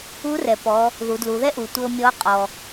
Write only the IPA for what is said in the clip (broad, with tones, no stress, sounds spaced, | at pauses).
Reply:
u˧˥ r ɛ˩ p ɔ˩˧ | ð u˩˧ d l u˩˧ ð ɛ˥ ʔ u˩ tʷ ɤ˧ mʲ ɔ˧˥ qʼ ɔ˩